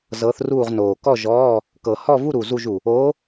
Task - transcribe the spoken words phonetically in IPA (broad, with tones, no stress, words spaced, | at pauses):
zɤ˧˥θruː˥˧ʁnoː˨˩ kɔ˥˧ʒɔː˧˥˧ | kɤ˨˩hɔ˥˧vu˥˧ɾu˨˩ zu˥˧ʒu˨˩ | oː˧˥